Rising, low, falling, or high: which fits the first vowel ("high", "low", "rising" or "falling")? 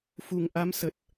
low